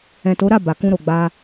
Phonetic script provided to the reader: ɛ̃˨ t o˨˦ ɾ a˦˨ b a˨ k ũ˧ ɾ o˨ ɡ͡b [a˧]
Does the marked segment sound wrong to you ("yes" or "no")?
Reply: no